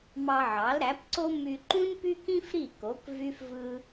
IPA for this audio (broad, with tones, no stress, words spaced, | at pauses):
mɑ˧ʕɑ˩˥lɾæ˩˥pǀo˥ my˧ǃũ˥npy˥ kĩ˥fɾi˥˩ko˩˥k vy˥fvɯ˥